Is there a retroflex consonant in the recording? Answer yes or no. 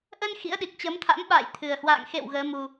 no